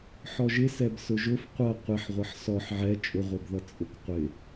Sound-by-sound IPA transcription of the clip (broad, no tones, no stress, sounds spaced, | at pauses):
ħ ɔ ʒ ɪ s ɛ b s ʊ ʒ ʊ f qʷ ʌ qʷ ɪ ħ ʁʷ ʌ ħ s ɔ ħ ʕ ɛ t͡ʃʼ ʊ ʁʷ ɛ b ð ʌ t͡sʼ ʊ k qʷ ɪ